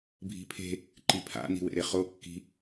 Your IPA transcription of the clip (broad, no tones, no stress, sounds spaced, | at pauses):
bʱ i̤ pʰ e̤ | ǃ i pʰ a̰ n i̤ w ḛ ɾ e χ o kː i̤